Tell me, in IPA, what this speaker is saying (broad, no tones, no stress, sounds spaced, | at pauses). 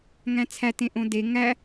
ŋ æ̃ t͡sʰ æ t ẽ ʔ õ d e ŋ æ